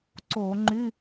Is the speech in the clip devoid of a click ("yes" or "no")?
no